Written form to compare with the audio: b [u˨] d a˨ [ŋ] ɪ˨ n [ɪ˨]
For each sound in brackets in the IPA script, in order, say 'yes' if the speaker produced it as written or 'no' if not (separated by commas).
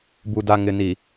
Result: yes, yes, no